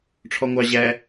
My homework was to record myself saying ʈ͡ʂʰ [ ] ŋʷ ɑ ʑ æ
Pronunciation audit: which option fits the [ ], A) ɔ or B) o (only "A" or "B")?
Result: A